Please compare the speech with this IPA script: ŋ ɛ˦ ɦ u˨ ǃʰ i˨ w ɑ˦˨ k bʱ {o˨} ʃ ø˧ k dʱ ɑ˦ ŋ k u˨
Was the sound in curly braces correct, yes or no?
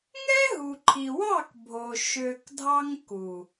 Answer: yes